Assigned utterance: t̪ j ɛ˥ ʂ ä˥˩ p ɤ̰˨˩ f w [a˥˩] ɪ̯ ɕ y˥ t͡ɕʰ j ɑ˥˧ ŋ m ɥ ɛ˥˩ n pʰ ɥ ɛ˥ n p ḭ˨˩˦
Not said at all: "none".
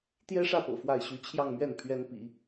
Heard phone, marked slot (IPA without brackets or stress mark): a˥˩